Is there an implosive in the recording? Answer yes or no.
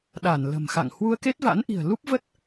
yes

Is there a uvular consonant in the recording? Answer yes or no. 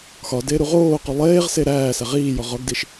yes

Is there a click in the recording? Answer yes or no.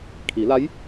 no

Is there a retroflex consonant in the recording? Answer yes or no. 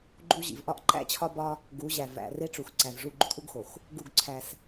yes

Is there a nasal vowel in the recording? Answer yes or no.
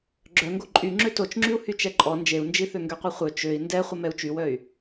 no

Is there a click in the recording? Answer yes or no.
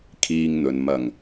no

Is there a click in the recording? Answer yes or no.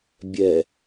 no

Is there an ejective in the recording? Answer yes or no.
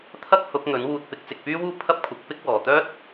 no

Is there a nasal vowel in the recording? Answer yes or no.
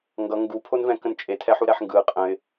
yes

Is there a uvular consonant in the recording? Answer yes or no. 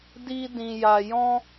no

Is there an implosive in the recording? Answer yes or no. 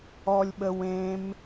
yes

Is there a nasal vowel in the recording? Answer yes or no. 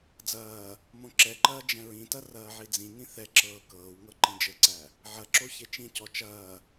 yes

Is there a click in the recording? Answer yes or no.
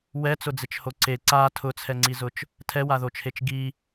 yes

